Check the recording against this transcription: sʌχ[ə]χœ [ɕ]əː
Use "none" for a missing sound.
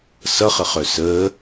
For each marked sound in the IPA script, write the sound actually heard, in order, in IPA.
ə, s

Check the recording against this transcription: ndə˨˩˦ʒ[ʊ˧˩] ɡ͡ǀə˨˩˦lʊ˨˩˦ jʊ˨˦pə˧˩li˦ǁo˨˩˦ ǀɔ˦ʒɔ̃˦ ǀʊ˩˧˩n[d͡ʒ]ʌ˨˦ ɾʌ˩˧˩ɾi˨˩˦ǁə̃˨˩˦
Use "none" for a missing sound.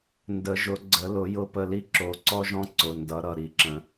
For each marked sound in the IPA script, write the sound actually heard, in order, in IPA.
ʊ˨˩˦, d

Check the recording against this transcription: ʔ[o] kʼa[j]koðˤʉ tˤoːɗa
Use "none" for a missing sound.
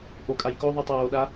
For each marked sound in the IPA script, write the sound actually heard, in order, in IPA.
o, j

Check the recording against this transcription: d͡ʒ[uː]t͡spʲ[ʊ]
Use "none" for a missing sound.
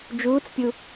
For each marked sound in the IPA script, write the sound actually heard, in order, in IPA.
uː, u

